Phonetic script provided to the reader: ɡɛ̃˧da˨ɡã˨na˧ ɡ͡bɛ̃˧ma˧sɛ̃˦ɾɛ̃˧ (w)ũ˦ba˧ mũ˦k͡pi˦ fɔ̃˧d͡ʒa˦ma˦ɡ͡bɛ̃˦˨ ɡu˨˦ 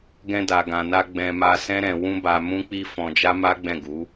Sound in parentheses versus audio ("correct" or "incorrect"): correct